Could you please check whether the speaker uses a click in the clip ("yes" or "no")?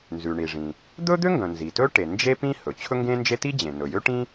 no